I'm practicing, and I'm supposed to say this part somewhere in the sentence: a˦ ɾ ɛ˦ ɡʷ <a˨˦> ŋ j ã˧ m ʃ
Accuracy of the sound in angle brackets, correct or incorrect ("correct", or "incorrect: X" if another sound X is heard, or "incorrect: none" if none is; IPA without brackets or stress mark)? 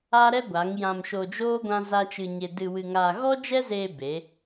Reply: correct